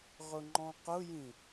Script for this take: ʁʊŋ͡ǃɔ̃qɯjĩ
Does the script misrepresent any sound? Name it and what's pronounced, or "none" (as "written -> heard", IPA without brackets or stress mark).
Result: ɯ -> ʊ